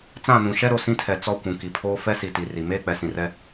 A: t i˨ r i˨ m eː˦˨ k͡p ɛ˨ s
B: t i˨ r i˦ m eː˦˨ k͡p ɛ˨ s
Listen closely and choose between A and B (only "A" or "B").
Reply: A